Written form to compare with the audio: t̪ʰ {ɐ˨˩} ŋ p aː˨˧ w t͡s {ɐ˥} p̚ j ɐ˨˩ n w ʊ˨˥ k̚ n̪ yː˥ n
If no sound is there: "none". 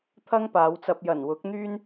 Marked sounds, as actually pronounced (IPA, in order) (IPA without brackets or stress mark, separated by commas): ɐ˥, ɐ˧